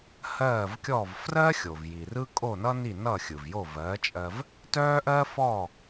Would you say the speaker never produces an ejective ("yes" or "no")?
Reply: no